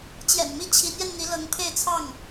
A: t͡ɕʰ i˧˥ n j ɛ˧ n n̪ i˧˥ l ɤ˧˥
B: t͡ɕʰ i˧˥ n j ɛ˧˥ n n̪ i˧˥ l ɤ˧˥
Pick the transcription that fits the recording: A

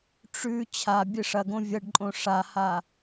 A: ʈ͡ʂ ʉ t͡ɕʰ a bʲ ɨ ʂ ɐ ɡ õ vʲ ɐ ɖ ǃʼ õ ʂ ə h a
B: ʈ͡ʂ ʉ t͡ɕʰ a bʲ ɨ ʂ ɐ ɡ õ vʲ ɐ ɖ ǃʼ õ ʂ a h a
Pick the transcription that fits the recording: B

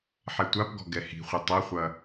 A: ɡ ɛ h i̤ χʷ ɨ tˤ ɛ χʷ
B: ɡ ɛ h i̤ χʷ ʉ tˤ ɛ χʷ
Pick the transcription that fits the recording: A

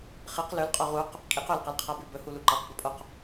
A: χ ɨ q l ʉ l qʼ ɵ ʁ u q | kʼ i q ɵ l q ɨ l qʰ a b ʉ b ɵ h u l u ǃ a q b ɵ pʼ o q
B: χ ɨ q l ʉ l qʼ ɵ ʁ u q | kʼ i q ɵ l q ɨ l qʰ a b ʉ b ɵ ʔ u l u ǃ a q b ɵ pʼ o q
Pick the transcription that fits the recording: A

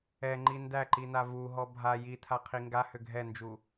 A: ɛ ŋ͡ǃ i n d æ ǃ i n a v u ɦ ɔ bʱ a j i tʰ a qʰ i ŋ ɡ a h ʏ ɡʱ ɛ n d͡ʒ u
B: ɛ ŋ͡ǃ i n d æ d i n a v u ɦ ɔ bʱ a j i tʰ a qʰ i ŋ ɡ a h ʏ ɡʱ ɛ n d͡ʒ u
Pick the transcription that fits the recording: A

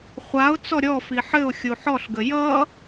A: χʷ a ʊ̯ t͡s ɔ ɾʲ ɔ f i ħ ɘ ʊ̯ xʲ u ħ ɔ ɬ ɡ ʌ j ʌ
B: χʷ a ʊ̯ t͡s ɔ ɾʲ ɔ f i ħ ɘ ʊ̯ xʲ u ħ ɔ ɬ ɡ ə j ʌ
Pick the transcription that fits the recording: B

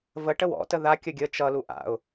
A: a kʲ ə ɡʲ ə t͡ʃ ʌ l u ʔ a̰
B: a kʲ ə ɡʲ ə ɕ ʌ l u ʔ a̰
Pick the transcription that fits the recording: A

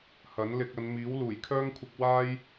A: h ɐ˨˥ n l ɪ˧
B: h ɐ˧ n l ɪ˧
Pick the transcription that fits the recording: A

